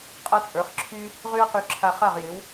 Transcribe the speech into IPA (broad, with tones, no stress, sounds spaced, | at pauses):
qʼ a˥ t͡sʼ ə˞˩˥ χ ǁʰ y˥ | ʁ y˥ ɐ̯ q y˧ ǁʰ a˧ χ a˥˩ ʁ j ɪ˩˥ w